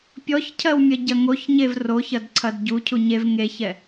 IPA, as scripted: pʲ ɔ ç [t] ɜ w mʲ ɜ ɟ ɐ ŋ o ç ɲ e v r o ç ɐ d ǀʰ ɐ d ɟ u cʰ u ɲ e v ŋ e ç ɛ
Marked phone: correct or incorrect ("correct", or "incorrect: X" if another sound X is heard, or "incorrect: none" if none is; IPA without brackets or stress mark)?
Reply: incorrect: cʰ